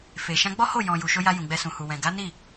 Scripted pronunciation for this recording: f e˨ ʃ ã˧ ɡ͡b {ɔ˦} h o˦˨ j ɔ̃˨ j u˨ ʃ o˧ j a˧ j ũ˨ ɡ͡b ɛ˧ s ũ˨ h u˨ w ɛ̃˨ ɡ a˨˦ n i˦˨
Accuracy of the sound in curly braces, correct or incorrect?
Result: correct